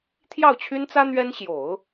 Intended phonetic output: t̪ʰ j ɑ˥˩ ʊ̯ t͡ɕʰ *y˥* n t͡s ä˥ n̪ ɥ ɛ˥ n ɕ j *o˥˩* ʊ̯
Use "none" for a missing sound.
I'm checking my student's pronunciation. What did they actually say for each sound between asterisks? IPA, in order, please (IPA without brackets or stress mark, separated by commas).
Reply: y˥, o˨˩˦